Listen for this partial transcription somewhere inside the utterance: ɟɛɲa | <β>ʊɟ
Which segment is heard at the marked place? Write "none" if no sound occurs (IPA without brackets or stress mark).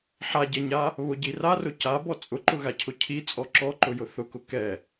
β